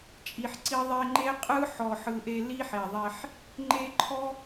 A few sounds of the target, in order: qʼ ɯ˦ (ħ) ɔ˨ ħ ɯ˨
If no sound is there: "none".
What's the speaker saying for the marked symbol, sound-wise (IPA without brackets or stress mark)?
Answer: ħ